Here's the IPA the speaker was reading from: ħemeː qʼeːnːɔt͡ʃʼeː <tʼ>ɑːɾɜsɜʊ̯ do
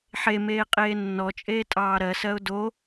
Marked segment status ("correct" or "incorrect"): correct